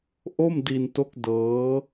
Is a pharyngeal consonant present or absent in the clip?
absent